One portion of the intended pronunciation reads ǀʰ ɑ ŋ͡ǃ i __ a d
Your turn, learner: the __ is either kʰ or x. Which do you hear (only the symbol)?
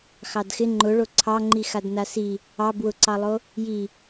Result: x